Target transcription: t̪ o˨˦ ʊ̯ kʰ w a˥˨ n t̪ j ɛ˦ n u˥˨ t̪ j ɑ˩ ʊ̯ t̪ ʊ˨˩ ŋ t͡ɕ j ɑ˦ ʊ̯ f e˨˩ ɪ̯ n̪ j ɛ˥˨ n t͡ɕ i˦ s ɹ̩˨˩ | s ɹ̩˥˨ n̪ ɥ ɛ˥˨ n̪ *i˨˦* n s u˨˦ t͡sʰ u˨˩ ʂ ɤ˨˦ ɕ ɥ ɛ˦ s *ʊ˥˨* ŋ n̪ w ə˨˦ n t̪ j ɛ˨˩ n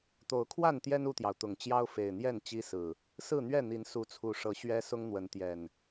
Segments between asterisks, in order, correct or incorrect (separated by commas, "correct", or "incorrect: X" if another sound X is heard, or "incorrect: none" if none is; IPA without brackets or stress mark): correct, incorrect: ʊ˦